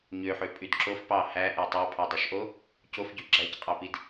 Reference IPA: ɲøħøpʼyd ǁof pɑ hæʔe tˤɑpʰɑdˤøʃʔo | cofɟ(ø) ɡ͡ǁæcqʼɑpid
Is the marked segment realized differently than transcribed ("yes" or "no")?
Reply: yes